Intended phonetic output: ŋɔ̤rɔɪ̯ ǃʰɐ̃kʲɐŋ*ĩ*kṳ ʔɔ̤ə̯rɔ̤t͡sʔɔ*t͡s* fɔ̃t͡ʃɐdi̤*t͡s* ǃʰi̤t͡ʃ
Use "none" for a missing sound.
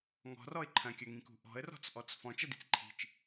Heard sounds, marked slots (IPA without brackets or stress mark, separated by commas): ĩ, t͡s, t͡s